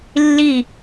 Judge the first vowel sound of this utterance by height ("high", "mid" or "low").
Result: high